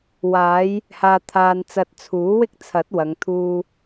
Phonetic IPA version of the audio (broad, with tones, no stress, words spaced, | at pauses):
waː˨˧j | haː˨ t̪ʰaː˧nt͡sɐ˧t̚ t͡sʰuː˨˥wɪ˥k̚ t͡sʰɐ˨˥t̚wɐ˨˧ŋ t̪ʰuː˥